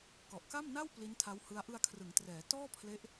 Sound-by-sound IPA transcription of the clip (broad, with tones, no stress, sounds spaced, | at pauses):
k ɔ˨˩ ʔ k a˥˩ m n a˥˩ w p l i˦˥ n tʰ a˦˥ w h ɯ˦˥ a̯ ʔ ɯ˧ a̯ kʰ r ɯ˩˦ ŋ t r ɛː˩˦ t ɔː˥˩ pʰ l e˦˥ ʔ